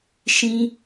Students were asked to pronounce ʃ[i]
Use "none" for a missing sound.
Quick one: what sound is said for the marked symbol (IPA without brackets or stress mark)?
ĩ